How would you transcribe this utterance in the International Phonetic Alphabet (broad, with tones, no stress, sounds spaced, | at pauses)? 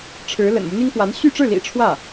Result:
ʈ͡ʂʰ ɻ̩˧˥ l ə̰˨˩ n m u˦ n̪ i˥ ŋ f w a˧˥ n ɕ y˥˧ ʈ͡ʂ ɻ̩˥˩ l ḭ˨˩ ʈ͡ʂʰ w ä˥˩